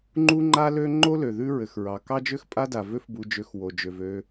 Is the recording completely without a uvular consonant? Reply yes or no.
yes